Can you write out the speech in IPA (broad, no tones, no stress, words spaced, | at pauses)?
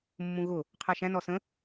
mːũɣʊ | qʰɜʃæ̃ nɔsə̃